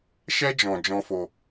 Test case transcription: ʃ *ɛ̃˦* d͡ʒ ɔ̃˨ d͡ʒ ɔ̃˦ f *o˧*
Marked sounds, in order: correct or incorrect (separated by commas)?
incorrect, correct